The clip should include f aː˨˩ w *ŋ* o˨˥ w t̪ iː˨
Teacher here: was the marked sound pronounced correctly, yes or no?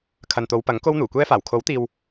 no